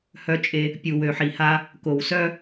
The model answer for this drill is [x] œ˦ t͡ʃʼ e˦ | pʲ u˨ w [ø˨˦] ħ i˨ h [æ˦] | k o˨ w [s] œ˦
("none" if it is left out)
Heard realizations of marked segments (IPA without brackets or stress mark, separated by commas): h, ø˨, a˦, s